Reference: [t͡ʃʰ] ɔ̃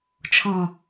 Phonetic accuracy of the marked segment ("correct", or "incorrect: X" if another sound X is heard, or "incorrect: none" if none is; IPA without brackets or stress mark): correct